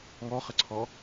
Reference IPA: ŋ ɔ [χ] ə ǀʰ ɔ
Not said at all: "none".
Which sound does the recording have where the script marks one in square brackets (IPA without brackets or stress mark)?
χ